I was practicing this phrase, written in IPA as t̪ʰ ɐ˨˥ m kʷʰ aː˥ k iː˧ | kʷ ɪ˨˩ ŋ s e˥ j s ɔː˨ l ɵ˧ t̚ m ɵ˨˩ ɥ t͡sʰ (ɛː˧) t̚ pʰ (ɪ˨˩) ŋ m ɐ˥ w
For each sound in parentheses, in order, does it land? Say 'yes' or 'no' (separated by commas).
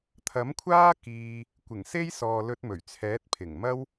no, yes